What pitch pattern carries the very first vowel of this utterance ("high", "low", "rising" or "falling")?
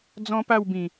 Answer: high